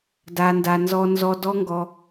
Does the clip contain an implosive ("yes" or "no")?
no